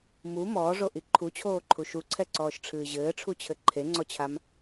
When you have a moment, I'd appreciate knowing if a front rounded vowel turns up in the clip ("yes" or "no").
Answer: no